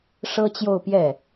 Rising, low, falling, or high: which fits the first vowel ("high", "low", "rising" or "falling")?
high